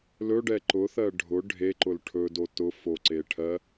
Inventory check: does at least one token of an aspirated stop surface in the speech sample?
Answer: yes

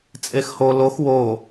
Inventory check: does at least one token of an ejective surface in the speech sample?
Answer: yes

